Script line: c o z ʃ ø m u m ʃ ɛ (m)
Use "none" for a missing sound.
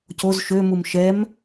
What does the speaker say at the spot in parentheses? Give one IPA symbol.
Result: m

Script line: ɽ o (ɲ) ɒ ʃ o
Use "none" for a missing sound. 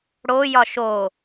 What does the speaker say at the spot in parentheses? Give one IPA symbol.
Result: j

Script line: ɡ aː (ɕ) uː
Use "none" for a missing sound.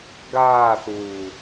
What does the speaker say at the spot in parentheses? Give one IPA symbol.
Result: θ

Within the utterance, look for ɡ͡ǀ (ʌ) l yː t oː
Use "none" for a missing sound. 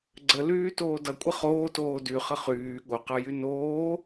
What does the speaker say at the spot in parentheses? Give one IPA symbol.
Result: ə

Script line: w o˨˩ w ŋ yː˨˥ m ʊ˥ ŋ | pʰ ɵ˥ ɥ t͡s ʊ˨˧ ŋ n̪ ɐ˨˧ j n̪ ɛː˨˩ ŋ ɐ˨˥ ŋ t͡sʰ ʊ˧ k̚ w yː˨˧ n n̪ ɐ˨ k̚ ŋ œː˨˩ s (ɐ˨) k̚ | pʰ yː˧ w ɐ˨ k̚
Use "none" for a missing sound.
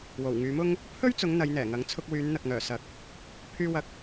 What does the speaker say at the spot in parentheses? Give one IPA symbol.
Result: ɐ˨˥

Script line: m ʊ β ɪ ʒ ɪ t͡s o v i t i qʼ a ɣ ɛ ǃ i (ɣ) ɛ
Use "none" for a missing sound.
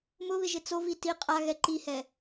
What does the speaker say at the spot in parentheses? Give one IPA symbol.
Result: h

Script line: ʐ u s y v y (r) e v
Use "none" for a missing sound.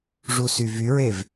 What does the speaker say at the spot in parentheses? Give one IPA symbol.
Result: ɹ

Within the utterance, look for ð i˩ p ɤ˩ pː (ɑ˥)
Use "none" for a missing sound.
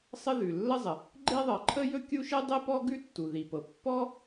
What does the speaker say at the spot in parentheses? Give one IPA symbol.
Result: ɔ˥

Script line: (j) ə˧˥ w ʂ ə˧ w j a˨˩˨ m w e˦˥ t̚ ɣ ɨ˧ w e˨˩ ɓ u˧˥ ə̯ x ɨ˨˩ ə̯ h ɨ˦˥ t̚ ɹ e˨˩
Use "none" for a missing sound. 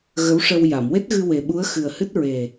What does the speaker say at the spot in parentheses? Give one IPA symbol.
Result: ɣ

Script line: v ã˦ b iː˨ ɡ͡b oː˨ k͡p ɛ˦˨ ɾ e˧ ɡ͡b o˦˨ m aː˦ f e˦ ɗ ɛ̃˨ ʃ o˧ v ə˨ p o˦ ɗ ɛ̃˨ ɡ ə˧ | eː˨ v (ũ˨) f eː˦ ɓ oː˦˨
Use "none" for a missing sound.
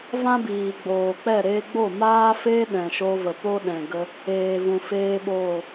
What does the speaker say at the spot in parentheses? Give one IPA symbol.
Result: ũ˨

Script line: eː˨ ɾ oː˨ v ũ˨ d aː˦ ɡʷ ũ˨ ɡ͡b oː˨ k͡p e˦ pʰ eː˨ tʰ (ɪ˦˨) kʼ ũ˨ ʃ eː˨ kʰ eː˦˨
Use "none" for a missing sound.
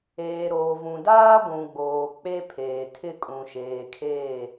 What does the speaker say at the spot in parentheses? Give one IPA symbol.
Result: ɪ˦˨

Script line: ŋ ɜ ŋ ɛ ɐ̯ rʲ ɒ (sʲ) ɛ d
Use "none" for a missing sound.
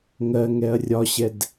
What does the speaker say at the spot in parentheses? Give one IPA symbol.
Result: ɕ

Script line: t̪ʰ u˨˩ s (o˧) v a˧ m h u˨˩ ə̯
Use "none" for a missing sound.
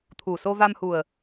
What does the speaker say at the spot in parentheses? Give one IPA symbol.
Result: o˧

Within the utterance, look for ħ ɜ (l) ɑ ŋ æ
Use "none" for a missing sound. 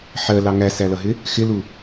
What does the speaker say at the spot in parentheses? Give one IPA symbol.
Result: l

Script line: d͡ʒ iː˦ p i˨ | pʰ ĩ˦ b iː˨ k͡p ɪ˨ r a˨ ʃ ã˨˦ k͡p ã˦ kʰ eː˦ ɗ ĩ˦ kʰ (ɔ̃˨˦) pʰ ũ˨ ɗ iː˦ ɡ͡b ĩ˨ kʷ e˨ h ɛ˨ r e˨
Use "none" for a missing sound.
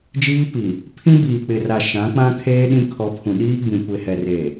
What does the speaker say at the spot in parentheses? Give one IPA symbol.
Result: ɔ˨˦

